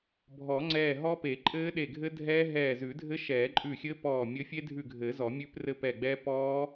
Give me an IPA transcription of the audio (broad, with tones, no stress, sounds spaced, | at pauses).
bʱ ɔ˨˩˦ ŋ͡ǀ ɛː˧˩ ɦ ɔ˦˥ p e˨˩˦ ǃʼ ɘː˦˥ ɗ e˧˩ ɡʱ ɘ˦˥ dʱ ɛː˦˥ ɦ ɛː˧˩ z ʉ˨˩˦ dʱ ɘ˦˥ ʃ ɛː˨˩˦ ǃʼ ʉ˧˩ xʲ ɘː˦˥ p ɔː˧˩ mʲ ɘ˦˥ fʲ e˦˥ dʱ ʉ˧˩ ɡʱ ɘː˨˩˦ z ɔ˨˩˦ mʲ ʉ˦˥ p r ɘ˦˥ p ɛ˧˩ ɡ͡b ɛː˦˥ p ɔː˦˥